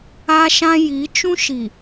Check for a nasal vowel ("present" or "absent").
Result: present